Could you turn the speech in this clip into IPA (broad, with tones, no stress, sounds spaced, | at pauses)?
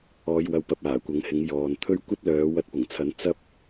ɔː˧ j w ɐ˧ w p ɐ˧ p̚ aː˨˩ kʷ ɐ˨˥ ŋ h ɪ˨˧ ŋ j ɔː˨ n t̪ʰ ɵ˥ ɥ kʷ ɐ˥ t̚ l œː˨˧ w ɐ˧ t̚ p ʊ˨˩ ŋ t͡sʰ ɐ˨˥ n t͡s ɐ˥ p̚